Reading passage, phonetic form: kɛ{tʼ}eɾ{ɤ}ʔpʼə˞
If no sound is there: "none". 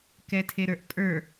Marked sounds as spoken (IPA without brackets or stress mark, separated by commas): tʰ, ə˞